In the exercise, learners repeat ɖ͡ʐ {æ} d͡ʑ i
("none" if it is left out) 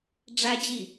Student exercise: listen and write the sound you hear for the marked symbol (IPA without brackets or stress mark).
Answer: æ